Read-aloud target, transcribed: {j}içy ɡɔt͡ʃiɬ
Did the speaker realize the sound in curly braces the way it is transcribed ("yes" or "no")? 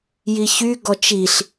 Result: yes